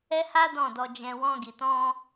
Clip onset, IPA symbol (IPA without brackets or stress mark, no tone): ɛ